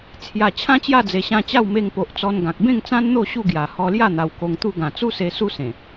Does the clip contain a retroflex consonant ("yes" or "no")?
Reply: no